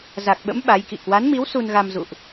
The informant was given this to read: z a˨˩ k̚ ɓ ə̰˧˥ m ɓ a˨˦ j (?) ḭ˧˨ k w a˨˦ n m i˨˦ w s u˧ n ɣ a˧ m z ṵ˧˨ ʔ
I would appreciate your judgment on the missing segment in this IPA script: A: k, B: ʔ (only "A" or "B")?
A